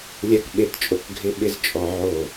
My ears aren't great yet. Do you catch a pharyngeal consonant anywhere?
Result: yes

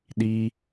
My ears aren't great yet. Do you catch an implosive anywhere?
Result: yes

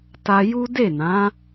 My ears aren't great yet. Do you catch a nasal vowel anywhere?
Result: yes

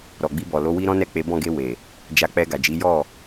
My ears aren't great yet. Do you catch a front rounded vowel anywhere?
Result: no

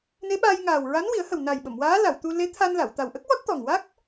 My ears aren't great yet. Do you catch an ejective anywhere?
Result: no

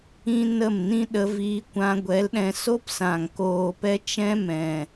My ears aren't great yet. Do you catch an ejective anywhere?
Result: no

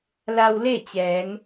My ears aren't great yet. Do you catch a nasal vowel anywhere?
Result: no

